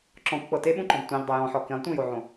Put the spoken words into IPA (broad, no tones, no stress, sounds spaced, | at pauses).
ǁ ɔ̃ kʷ k͡p ɤ t e ɓ ũ ǃ ɔ̃ b tʷ ɛ̃ ʎ dˤ e j ɔ̃ ħ ɔ k ĩ lˠ tʷ ĩ j o ʕ õ